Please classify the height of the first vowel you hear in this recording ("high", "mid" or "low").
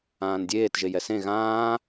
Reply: low